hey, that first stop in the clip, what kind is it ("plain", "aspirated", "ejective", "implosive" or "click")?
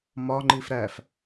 click